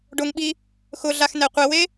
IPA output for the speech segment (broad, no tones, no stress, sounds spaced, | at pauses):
ɖ ʊ ŋ ɓ i | x ʊ ɮ a x n ɛ qʷ ɛ w e